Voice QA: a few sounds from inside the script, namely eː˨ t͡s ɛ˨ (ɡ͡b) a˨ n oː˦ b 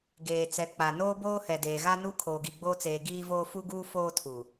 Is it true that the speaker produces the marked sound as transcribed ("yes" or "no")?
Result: no